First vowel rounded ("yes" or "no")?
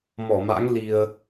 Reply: yes